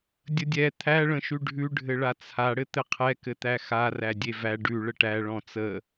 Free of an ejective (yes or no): yes